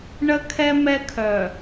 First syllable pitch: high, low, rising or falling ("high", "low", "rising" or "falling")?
high